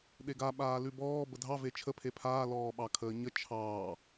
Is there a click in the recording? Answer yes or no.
no